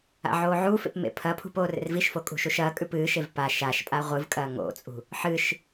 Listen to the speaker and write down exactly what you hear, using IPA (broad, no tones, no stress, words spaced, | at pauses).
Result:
a̰ʕoːʕufḛp mḛpʰɐpʰṳp oːrḛrviʃfo kʼṳʃuʃɐːkʼʉp ɨːʃev pa ʃaʃpʼa ʁʷɨvkʼɐː ŋo̰t͡sʼṳ | ħɨʃ